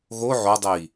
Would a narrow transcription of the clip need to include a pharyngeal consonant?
yes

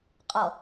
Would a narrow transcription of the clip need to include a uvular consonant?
yes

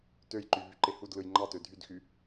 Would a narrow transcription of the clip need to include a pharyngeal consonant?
no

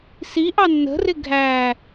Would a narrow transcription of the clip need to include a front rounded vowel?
no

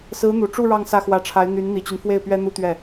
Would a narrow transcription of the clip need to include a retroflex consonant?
yes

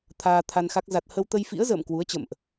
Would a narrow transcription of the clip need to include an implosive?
no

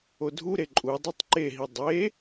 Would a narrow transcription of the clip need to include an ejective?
yes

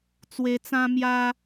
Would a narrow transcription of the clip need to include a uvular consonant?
no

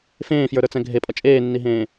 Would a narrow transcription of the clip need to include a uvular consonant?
no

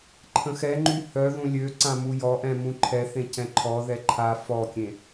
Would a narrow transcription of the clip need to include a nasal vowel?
yes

